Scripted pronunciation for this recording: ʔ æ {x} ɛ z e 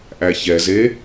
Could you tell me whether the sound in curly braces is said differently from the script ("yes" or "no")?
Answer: yes